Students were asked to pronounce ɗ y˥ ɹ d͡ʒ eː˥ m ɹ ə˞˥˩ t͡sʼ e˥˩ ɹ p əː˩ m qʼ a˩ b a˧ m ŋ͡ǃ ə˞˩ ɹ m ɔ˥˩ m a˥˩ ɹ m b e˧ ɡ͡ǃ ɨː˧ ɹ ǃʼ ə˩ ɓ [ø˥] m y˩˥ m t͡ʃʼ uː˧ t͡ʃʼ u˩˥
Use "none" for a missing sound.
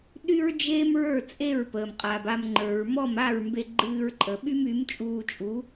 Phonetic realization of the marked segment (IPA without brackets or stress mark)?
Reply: y˥